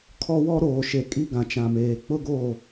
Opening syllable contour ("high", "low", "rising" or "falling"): high